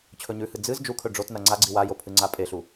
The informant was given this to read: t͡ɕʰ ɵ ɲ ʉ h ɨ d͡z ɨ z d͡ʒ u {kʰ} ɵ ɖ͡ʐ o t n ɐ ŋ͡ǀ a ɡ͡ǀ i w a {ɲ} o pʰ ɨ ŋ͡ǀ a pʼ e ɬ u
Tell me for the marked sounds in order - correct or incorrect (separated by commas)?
correct, incorrect